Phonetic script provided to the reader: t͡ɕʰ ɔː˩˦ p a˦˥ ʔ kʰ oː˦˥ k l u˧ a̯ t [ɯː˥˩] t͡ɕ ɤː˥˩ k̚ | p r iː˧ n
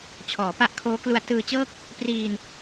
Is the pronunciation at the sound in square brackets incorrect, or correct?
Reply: incorrect